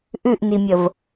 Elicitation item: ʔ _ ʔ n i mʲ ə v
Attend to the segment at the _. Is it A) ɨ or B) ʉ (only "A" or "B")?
B